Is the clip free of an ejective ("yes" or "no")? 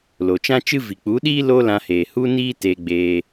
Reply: yes